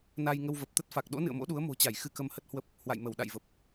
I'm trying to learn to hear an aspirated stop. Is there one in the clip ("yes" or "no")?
no